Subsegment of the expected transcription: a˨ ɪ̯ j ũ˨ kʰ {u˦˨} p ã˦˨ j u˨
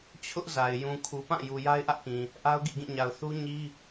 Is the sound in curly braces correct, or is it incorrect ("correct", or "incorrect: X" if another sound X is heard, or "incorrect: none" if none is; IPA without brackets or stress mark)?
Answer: incorrect: u˨